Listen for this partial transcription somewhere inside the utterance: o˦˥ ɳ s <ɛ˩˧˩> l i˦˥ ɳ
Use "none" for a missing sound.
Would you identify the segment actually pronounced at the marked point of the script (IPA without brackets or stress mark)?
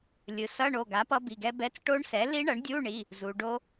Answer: ɛ˩˥